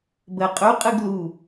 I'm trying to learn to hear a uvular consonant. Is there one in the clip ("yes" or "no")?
yes